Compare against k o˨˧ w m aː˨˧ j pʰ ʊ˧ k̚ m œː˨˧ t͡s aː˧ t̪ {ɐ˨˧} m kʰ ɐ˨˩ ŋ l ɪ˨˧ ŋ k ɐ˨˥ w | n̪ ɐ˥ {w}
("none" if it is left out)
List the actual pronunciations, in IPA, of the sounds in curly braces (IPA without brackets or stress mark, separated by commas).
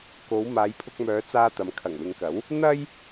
ɐ˨˧, j